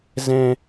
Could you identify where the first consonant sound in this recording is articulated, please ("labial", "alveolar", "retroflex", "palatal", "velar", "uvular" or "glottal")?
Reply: alveolar